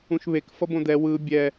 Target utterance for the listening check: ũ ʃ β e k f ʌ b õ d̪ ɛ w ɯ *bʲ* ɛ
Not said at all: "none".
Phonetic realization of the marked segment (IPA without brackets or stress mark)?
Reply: bʲ